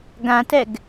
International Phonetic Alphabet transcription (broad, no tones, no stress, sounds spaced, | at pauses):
ɡ ã t ɛ ɡ